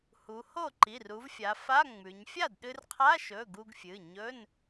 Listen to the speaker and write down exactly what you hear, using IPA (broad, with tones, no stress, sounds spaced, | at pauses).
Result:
h u˩˧ h o˥˩ ǃ i˩˧˩ r u˩˧ v fʲ a˩˧ f a˧˥˧ ŋ͡m ʉ˩˧ ɲ fʲ a˥˩ d ɗ ɨ˧ r qʰ a˧˥˧ ʃ ɵ˩˧˩ ɡ u˧ ɡ fʲ ɨ˩˧˩ ɲ ɵ˧˥˧ n